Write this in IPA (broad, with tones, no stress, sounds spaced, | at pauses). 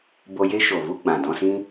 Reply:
b o˧ j e˦ ʃ o˨ v u˦ ɡ͡b ã˨ d ɔ̃˧ s ĩ˦